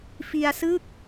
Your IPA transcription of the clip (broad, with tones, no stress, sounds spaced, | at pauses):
f i˧ a̯ s ɯ˥˩ k̚